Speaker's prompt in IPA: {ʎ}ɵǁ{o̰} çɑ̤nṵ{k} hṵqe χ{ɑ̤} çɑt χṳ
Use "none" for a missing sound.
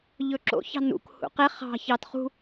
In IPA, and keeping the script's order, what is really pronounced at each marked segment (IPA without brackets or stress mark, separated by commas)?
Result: ʎ, o̰, k, ɑ̤